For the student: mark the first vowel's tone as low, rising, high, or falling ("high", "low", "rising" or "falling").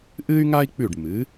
high